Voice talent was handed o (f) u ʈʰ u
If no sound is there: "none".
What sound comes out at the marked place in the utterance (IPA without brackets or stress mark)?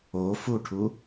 f